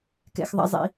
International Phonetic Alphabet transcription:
k ɛ̰˧ x ðˤ ɛ̰˦ zˤ ḭ˧

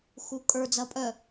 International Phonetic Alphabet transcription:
x u kʼ ə˞ d͡z ɐ pʼ œ

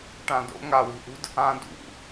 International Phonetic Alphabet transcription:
ʈ ã d o̰ ŋ a w i̤ ʔ ṳ d | ã d ṵ

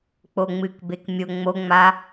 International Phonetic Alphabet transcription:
k͡p o ŋ͡m ɨ k b e k mʲ o ŋ͡m o ŋ͡m a

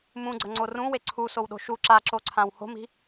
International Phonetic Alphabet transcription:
m ũ ɡ͡ǀ ɐ ŋ͡ǀ o r ũ w e ǀʰ u s o w ɗ o̤ ʃ u ǁ a ǁ o ǀʰ ã w h o̤ m i̤

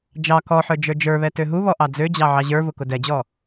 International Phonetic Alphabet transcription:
d͡ʒ ɑ k ɔ ħ ə˞ d͡ʒ ə˞ d͡ʒ ə˞ β ɛ t ø ɦ u β ɔ ʔ ɑ d͡z ø d͡ʑ ɑ ʕ ɑ ʑ ə˞ v ʊ k ʊ d ɛ d͡ʑ ɔ

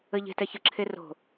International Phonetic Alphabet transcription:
ə ʎ e̤ t ɛ ç ə ǁʰ e r o̤

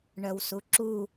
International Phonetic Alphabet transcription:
ɳ œ w s u ǁ u

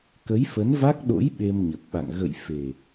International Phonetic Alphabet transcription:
k ə˨˦ j f ə˨˦ n v a˦˥ k̚ ɗ o̰˧˥ j ɓ e˧ m ɲ ə˨˩ p̚ ɓ a̰˧˨ ŋ ɣ ə̰˧˨ j f e˨˩

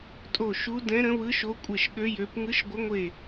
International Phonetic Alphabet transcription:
tʼ o˧˩ ʃ u˨˦ d ɛ̃˨˦ ɾ ə̃˨˦ β ɯ˨˦ ʃ o˨˦ kʷʼ e˧˩ ʃ ɠ ø˨˦ j ø˨˦ p ŋ ɯ˨˦ ʃ ɡʷ ə˨˦ ŋʷ e˧˩

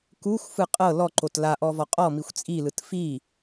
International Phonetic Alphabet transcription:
k u xʷ f ɯ qʼ ɤ l ɔ ǃ o t l a ʔ ɔ v ɔ qʼ ɔ m i xʷ t͡sʼ i l ɯ t f i

